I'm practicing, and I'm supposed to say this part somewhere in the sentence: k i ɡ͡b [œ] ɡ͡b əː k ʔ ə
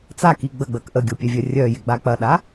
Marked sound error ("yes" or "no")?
yes